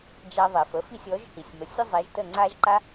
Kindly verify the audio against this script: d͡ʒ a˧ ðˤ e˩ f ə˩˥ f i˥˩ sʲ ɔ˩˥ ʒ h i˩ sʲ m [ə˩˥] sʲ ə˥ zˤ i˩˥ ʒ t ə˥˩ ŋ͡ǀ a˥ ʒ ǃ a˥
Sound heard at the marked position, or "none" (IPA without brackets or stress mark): ə˩˥